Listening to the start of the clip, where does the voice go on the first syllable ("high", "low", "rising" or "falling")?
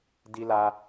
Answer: high